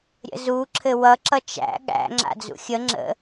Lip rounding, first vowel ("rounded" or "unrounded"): unrounded